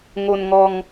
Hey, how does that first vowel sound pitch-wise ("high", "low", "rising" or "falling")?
low